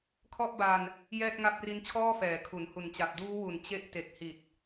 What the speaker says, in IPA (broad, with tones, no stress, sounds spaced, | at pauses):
kʰ ɔ˥˩ ʔ b a˧ n | j ɛː˥˩ t̚ ŋ a˦˥ p̚ r i˦˥ n t͡ɕʰ ɔː˥˩ f ɛː˨˩ kʰ u˩˦ n h u˨˩ n t͡ɕ a˨˩ p̚ d uː˦˥ w u˩˦ n t͡ɕ e˦˥ ʔ t e˨˩ k̚ h i˨˩ t̚